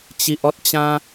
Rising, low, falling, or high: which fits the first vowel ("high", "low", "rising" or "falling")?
low